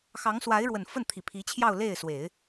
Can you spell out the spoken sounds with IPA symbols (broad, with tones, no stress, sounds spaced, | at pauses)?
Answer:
x ɑ˧˥ ŋ s w a˧˥ ɪ̯ ɻ w ə˨˩ n f ə˥˩ n t̪ʰ i˨˩ pʰ i˧˥ t͡ɕʰ j ɑ˥˧ ʊ̯ l e˥˩ ɪ̯ s w e˨˩˦ ɪ̯